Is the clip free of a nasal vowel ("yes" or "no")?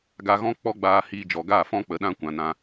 no